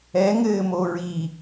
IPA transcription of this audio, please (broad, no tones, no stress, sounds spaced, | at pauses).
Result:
ɛ ŋ ɘː m o ɹ i